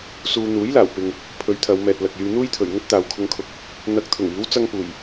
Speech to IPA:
suː˧ n̪uː˨˥jlaː˨˩wpɪ˨ŋ | pʰɵ˨˥ɥ t̪ʰɐ˨˧w mɛː˨t̚lɐ˨k̚jyː˧ n̪uː˥jt̪ʰɵ˨˩ɥ ŋɵ˥t̚t̪aː˨wkʰʊ˧ŋkʰʊ˨˥k̚ | n̪ɐ˨˥k̚t̪ʰʊ˨˩ŋ iː˨˥w t͡sɐ˥ŋpuː˨˩j

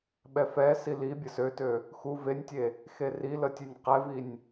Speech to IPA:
ɓɛfɛ sili bʲəsøtø | xu venʲtʲe | xerilətʲenʲ qɛvinʲ

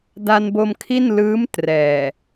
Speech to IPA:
da˧nbo˧mkʰi˥˩nlɯː˦˥m trɛː˨˩

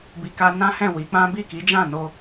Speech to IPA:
bi˧ka˦ nã˦hɛ̃˦˨wi˨˦k͡pã˦ bi˦˨ki˨˦d͡ʒã˦˨no˧

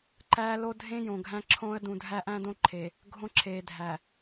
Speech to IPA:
ǃæː˦lo˦ dʱẽ˦ jõ˨ɡʱæ̃˦ǁʰõː˦ə̯ dũ˨dʱæ˦ʔæ̃˦ dõ˦ǃʰe˨ | ɡʱõ˦ ǁʰeː˨dʱæ˨

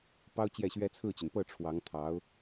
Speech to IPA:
pɑ˥ʊ̯t͡ɕjɛ˥˩ɕɥɛ˥ t͡sʰɹ̩˥˩t͡ɕy˩n pɤ˥˩ʈ͡ʂʰwɑ˧˥ŋ t̪ʰɑ˧˥ʊ̯

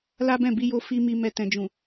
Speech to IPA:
la˦bɛ̃˦˨bi˧jo˧ fi˦mi˧mɛ˧ tɛ̃˨d͡ʒũ˨

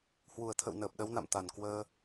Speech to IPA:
hwu˨˩ə̯t̪ʰə̰˧˨wnəː˨˩p̚ ɗə˨˦wna̰˧˨m t̪a˨˩n kwəː˧

